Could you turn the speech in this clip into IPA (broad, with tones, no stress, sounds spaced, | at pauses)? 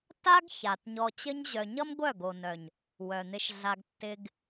t a˦ ɡ ç a˨ t ɲ ɔ˧ t͡ɕ ə˦ ɲ ʑ œ˧ ɲ ʌ˦ m ɡʷ œ˦˨ ɡ o˨ n œ˨ ɲ | w œ˨ n̪ ɪ˧ ʃ ɮ a˧ ɡ tː ɪ˧ ɡ